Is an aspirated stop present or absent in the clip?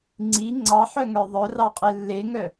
absent